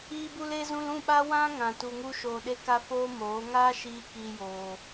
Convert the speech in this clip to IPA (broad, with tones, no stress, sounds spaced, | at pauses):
iː˧ b u˧ l e˧ z ũ˧ l ũ˦˨ ɓ a˦ w ã˦ ŋ ã˨ t u˨ ŋ u˧ ʃ oː˨ ɗ e˧ k a˧ f oː˦ m oː˨˦ ŋ aː˦ ʃ iː˧ k iː˧ j oː˨